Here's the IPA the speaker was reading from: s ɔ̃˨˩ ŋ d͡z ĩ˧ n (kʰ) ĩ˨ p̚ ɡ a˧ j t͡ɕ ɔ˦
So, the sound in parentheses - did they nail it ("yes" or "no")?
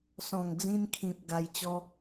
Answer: yes